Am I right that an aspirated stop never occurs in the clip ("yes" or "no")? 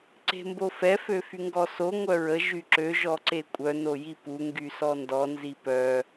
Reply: yes